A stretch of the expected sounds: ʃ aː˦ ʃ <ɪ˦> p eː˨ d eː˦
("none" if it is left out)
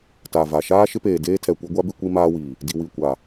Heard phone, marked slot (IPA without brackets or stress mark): ɪ˦